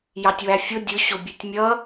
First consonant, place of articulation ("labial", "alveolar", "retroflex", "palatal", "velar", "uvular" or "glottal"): palatal